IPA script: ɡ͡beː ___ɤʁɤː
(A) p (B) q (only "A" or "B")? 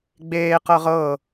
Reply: B